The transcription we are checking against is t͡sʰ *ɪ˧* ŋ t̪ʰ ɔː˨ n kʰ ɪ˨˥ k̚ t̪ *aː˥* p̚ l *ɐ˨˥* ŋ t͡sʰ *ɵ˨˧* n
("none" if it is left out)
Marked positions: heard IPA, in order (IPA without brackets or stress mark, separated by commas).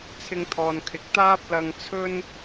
ɪ˧, aː˥, ɐ˧, ɵ˥